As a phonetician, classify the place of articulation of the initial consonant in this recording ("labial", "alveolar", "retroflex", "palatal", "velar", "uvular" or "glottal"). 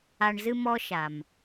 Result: retroflex